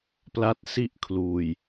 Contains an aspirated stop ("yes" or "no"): yes